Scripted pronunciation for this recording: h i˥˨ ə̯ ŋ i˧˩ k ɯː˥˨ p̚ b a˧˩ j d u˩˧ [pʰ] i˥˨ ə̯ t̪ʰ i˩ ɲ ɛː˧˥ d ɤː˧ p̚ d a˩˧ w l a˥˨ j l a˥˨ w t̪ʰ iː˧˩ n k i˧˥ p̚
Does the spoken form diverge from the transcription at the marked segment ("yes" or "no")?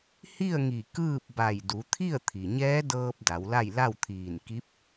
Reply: yes